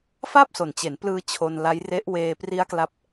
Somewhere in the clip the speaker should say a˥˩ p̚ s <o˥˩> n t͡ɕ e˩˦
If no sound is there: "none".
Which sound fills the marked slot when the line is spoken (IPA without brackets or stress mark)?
o˨˩